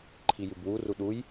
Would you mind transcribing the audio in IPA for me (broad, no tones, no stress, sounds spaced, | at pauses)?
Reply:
ǃʰ i j ʉ b w u r u ɗ u j